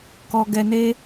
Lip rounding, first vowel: rounded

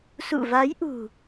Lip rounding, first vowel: rounded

